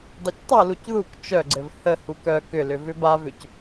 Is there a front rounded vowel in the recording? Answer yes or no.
yes